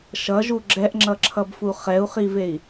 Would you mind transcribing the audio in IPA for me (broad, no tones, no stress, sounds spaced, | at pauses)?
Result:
ʃ ʌ ʒ u ɡ͡ǁ ɛ ʔ ŋ͡ǁ ʌ ǁʰ ʌ b f u χ ɛ u̯ χ i v e i̯